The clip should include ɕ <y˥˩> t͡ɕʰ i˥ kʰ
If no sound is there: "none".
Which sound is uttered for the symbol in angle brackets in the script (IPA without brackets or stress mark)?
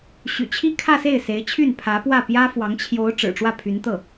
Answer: y̰˨˩